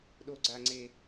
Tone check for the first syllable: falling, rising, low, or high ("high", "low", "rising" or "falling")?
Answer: high